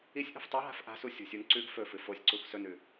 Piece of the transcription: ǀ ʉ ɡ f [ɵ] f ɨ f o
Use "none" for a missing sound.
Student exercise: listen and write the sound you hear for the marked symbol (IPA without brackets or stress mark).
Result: ɵ